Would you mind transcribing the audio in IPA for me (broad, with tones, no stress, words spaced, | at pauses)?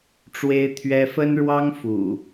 ʈ͡ʂwe˦ɪ̯t̪ʰɥɛ˦ fə˦nɻwɑ˦ŋfṵ˨˩